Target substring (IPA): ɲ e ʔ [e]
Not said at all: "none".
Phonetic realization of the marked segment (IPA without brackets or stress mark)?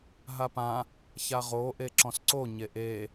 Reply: e